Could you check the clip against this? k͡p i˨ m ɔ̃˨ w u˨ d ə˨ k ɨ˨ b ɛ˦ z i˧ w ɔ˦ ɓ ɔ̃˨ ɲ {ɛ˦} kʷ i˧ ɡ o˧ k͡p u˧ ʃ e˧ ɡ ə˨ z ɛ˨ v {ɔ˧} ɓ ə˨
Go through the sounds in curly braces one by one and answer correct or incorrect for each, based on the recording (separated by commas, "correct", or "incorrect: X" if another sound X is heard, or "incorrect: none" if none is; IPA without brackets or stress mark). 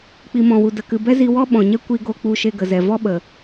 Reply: correct, incorrect: ɔ˦